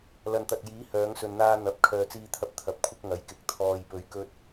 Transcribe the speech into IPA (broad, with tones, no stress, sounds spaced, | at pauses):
l ɐ˨ n t̪ ɐ˨ t̚ j iː˨˥ h œː˨˧ ŋ s ɵ˨ n n̪ aː˧ n̪ ɐ˨˥ p̚ kʰ œː˨ t͡s iː˧ t̪ʰ ɐ˧ p̚ t̪ʰ ɐ˨˥ p̚ kʷʰ ɪ˥ k̚ ŋ ɐ˨˧ j k ɪ˨ k̚ t̪ʰ ɔː˨ j p ɵ˨˥ ɥ k ɵ˧ t̚